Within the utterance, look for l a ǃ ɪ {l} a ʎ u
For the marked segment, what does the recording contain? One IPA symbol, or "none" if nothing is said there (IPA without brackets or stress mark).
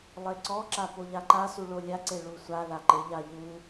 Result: ʎ